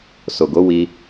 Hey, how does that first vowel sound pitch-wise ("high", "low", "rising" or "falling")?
low